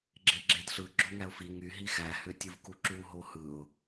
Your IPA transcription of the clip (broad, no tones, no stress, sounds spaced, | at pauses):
ɡ͡ǁ e ɡ͡ǁ e d ɬ ɯ ɡ͡ǁ o ŋ æ ʊ̯ f i ŋ y ɦ i x æ h ø tʲ ɯ v k u ǁ u ɦ o h ɯ ʊ̯